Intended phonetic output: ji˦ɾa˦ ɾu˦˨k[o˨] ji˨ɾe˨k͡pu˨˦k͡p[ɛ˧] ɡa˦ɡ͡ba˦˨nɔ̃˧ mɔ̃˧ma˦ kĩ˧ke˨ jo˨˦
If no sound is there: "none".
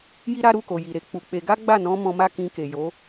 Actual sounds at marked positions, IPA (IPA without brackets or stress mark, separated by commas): o˨, e˧